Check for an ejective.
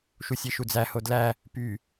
absent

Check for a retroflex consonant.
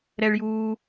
present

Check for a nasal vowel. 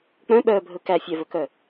present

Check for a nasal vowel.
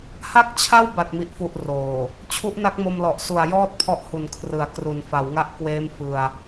absent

